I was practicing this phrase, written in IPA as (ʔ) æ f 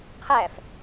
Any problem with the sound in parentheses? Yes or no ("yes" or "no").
yes